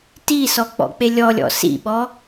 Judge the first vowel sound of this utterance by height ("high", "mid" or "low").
high